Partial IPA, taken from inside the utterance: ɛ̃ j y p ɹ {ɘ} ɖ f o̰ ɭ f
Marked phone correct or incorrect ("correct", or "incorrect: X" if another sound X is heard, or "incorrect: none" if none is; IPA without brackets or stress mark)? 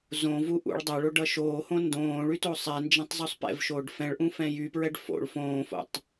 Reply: incorrect: ɛ